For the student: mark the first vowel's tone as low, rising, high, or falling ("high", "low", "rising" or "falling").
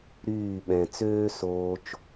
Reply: falling